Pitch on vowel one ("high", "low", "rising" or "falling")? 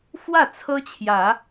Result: falling